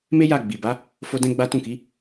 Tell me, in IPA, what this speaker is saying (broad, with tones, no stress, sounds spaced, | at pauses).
m e˦ j a˦˨ ɡ͡b i˨ b a˨˦ | f o˦ d ɛ̃˦ ɡ͡b a˦ t ũ˦˨ k i˨˦